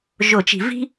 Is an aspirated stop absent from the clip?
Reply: yes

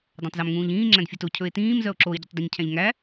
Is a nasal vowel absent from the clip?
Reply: no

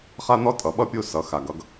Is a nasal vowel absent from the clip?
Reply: yes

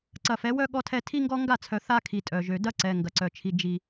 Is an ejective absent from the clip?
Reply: no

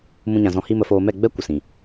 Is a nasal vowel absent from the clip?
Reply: no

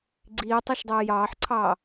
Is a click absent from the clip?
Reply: no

